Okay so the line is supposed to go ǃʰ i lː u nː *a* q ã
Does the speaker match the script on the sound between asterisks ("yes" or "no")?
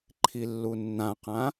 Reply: no